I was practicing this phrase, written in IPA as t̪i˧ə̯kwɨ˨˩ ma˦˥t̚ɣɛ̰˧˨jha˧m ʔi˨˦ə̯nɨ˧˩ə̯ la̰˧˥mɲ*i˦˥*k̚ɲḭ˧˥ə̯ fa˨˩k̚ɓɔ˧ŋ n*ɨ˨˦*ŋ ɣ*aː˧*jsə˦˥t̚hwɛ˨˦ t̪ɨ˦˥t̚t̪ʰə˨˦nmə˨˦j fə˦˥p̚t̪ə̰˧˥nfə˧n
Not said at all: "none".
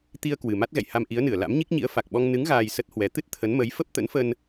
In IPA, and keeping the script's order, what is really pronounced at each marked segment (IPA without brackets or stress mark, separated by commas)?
i˦˥, ɨ˨˦, aː˧